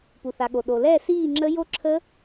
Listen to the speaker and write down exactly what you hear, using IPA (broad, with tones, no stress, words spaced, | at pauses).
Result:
pu˩θa˩ɠo˩ ɗo˩lɛː˥˨ siː˥˨ŋ͡ǁə˦˥ jo˦˥ǁʰə˦˥